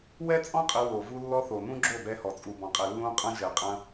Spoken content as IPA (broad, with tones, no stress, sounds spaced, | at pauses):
w ɛ˦ t͡sʼ ɔ̃˦ qʼ ɘ˧ w o˨ v u˧ lː ɔ˧ θ o˨ n ũ˦ ɡ͡ǁ o˦˨ b ɛ˧ h ɔ˨ t͡sʼ u˨ b ɔ̃˨ qʼ ɛ˨ lː ũ˧ qʼ ɐ̃˧ ʒ ɛ˨ qʼ ɐ̃˧